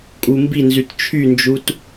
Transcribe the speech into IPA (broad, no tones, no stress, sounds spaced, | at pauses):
kʼ u m b i n z y t t͡ʃʰ y n d͡ʒ u t